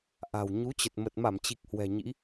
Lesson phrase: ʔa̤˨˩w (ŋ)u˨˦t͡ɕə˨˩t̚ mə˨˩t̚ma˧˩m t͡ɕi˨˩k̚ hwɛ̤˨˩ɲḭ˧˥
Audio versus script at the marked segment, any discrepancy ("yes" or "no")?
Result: yes